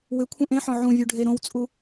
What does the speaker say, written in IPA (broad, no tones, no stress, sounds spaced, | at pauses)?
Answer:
w ɪ kʷʰ ẽ ʔ ẽ ħ ɔ̃ ʕ ũ vʲ u ɖʱ e ɾ õ w t͡sʼ u